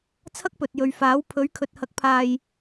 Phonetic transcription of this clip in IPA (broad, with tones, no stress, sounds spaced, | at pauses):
t͡sʰ ɐ˥ k̚ p ɵ˨ t̚ j ɵ˨ ɥ f aː˨˥ w pʰ ɵ˨˥ ɥ kʰ ɵ˨ t̚ h ɐ˨˥ k̚ pʰ aː˨ j